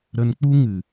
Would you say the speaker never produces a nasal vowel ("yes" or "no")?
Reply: yes